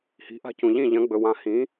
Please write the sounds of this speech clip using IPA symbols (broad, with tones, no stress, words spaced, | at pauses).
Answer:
hi̤˨˥ʔa̤˥˩cũ˨ ʎĩ˥˩ʎɐ̃˨˥ɡ͡bɵ˨ wã˨˥hĩ˨˥